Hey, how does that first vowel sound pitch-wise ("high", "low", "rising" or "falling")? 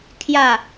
falling